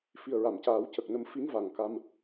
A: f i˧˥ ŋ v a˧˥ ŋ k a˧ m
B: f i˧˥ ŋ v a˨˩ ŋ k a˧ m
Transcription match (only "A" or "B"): B